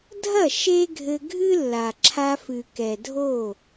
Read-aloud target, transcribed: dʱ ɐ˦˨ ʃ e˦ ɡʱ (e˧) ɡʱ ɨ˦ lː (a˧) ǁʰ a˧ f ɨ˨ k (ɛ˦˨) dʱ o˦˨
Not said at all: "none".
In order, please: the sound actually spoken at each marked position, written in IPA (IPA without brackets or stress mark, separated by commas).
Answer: ɘ˧, a˨, ɛ˨